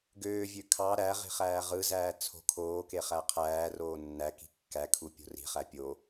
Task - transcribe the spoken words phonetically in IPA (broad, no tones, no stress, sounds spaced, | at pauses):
ɡ øː vʲ ø kʰ ɑ ɾ æ ʁ i̤ χ æː ʁ ɯ z æː t͡sʰ o̤ kʰ oː k e χ æ qʰ æː r oː nː æ k i̤ kː æ kʰ u pʲ o̤ r i̤ χ æ pʲ o